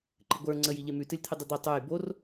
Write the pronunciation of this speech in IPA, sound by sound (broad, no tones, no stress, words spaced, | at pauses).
ǃɨɡʷə˞ ŋ͡ǀəj iʎemʉ tɨlʲt̪ʰɨdˤɨd̪ɜ tˤə˞j bor